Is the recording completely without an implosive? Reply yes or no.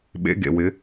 no